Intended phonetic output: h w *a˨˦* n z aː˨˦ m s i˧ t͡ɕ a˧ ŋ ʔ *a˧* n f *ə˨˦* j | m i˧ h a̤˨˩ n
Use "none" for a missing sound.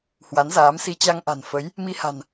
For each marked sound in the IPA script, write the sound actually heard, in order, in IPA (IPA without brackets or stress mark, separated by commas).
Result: a˨˦, a̤˨˩, ə˨˦